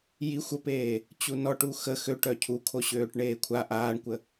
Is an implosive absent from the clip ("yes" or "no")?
yes